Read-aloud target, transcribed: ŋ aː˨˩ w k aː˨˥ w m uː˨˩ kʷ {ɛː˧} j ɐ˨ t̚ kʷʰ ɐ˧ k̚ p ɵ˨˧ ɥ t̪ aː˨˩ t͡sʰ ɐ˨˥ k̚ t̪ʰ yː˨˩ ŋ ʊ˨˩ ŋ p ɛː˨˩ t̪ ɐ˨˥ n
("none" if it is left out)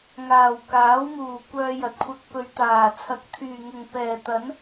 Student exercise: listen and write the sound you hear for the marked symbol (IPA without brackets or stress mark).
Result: œː˧